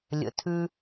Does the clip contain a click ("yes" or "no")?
no